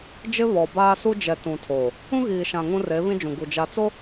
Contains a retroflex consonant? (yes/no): no